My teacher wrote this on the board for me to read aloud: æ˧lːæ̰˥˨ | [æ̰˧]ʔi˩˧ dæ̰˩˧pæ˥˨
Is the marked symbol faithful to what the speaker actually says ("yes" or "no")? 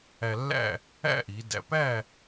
no